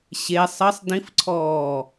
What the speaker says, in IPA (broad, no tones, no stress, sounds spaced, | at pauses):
ɕ e sˤ ɘ sˤ d ĩ f ǀʰ ɔː